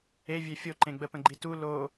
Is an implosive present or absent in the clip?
absent